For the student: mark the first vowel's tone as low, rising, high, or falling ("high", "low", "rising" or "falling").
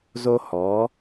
high